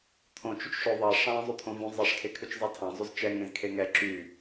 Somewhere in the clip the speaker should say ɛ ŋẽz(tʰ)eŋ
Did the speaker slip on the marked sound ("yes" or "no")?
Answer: yes